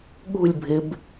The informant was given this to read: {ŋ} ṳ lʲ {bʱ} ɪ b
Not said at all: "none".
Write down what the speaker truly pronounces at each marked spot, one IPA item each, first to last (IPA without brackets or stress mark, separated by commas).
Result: ɠ, bʱ